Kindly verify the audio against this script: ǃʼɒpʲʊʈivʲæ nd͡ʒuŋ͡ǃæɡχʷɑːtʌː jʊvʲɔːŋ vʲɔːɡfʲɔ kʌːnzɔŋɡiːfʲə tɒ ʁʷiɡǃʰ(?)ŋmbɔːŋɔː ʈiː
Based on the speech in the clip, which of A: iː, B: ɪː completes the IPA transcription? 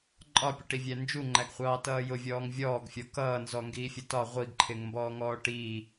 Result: B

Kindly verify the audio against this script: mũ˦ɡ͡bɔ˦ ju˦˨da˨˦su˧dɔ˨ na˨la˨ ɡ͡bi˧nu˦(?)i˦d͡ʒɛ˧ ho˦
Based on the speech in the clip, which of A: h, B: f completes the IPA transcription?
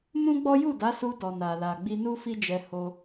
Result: B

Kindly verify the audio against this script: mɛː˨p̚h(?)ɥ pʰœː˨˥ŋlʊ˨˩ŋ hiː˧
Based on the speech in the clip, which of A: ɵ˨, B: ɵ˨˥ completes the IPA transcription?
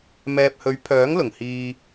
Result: B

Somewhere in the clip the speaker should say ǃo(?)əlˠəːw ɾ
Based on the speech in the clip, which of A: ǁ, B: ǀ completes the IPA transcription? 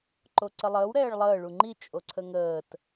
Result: B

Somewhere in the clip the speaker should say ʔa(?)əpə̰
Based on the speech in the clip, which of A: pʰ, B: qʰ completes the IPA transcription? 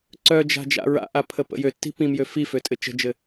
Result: A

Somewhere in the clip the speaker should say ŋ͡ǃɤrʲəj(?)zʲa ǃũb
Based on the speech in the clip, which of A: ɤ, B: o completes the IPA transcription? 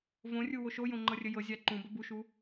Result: A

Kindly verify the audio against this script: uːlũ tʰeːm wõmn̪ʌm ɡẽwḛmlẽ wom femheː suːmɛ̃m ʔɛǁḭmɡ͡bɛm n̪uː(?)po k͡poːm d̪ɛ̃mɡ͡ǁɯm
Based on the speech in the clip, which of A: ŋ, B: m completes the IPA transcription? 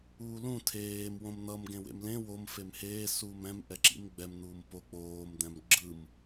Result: B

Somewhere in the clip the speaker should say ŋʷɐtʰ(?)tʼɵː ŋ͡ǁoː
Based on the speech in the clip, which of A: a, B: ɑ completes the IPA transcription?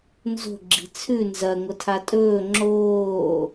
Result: A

